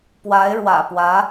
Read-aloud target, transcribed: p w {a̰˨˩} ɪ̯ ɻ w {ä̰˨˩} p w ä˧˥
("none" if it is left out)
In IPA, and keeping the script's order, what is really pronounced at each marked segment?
a˧˥, ä̰˨˩

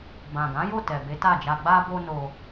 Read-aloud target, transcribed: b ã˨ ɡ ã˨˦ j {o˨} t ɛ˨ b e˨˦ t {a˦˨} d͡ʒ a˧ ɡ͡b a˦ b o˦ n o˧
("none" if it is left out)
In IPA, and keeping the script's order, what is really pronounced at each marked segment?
o˦˨, a˦˨

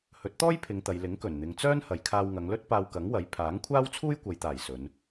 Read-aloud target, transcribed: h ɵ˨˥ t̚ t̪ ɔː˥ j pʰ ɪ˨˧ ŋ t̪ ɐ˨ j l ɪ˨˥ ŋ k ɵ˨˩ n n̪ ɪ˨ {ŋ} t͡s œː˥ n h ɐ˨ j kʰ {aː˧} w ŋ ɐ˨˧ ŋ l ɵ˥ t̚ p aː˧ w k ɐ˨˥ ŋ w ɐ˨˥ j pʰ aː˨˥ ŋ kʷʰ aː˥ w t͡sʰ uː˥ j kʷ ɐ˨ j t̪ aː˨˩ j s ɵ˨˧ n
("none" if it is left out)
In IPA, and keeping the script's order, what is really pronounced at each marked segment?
ŋ, aː˧

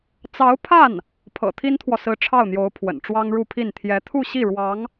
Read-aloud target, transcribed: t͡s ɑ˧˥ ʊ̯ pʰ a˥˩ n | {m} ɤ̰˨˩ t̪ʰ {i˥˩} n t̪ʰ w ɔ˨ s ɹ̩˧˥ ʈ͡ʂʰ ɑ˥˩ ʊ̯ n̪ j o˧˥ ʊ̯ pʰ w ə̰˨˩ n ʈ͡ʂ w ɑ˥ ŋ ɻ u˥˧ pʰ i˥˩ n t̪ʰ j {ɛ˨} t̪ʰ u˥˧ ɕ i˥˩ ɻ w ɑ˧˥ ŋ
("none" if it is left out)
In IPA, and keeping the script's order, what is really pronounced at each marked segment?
pʰ, i˥, ɛ˧˥

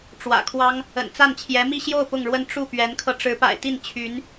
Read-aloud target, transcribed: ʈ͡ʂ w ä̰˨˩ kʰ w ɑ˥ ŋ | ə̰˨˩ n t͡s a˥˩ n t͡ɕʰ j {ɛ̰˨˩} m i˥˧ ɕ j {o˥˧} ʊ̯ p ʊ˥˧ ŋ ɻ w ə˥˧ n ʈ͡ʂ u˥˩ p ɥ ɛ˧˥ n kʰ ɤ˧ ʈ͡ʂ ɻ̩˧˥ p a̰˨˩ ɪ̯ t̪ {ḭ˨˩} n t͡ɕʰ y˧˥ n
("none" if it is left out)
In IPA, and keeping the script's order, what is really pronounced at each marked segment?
ɛ˧˥, o˥˧, i˥˩

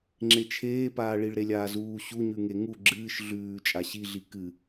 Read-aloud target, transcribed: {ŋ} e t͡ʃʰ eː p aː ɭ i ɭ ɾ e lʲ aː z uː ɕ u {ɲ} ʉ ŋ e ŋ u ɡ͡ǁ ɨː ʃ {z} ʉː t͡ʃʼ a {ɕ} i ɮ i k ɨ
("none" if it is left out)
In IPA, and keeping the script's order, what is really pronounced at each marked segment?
ŋ͡ǁ, ɲ, ɮ, ɕ

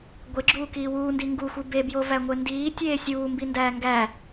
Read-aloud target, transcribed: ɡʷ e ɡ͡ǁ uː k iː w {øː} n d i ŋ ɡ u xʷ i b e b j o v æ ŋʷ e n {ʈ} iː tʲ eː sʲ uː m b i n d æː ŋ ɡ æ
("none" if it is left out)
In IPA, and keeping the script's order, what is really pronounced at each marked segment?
uː, d

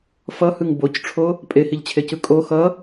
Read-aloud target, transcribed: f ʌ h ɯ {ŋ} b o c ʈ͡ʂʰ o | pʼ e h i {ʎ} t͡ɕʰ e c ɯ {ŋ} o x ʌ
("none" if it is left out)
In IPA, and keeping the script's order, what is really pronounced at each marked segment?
ŋ, ʎ, kʼ

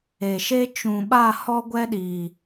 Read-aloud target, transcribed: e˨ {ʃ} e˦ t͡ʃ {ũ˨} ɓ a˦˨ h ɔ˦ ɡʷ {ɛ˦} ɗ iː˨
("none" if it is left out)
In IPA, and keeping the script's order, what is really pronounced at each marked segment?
ʃ, ũ˨, ɛ˦

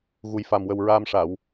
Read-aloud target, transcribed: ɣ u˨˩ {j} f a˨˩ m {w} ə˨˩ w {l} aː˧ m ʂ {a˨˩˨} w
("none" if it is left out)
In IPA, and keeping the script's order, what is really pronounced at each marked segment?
j, w, ɹ, a˨˩˨

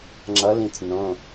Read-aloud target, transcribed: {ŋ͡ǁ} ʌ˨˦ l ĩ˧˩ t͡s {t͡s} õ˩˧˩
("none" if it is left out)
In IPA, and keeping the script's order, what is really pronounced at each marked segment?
ŋ͡ǁ, n

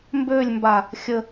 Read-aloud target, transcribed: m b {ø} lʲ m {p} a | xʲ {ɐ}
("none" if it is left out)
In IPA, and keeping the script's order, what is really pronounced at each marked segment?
ø, b, ə

